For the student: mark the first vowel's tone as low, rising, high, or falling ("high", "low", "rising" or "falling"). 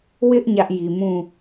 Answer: high